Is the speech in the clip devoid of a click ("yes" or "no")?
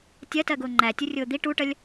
no